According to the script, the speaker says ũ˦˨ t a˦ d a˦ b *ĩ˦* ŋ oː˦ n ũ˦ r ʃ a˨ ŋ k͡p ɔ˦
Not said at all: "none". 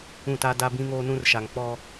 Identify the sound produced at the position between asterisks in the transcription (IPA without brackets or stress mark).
ĩ˦